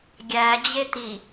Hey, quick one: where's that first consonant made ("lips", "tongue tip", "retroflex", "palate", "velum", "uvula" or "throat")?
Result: velum